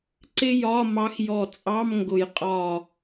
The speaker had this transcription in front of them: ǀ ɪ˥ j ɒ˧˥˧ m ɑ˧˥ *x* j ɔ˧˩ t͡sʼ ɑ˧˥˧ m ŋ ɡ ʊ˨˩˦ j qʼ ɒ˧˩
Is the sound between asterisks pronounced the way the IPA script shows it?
yes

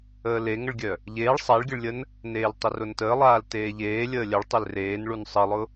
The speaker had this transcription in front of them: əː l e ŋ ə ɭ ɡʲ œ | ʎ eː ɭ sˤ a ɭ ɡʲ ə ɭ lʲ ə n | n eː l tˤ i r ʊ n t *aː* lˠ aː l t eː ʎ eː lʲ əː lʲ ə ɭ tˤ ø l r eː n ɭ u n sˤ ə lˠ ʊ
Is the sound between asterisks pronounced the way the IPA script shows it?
no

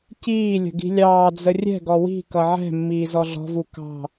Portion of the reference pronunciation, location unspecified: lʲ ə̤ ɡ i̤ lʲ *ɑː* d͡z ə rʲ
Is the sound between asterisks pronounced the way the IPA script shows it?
yes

